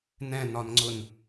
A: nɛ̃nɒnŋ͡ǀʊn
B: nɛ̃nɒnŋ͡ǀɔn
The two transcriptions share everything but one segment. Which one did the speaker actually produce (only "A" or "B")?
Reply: A